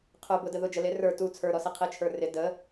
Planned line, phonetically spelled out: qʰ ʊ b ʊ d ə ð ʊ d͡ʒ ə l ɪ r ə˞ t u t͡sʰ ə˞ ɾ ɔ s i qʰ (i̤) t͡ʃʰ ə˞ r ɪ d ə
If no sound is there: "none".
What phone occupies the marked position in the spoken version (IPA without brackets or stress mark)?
i